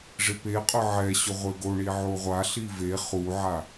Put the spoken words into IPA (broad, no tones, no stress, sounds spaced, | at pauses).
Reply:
ʐ ɪ p e qʼ ʊ ʕ ɛ ɕ ʊ ʁʷ e ɡ o ɳ i ʕ o ʁʷ a ɬ i v e χ u ʕ a